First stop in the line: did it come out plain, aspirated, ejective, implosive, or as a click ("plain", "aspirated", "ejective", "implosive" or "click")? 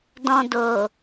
plain